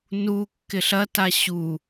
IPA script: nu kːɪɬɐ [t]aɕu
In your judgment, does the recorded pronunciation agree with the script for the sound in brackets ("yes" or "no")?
yes